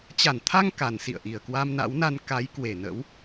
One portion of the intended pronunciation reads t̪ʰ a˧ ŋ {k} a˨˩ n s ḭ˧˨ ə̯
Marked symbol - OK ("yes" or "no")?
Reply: yes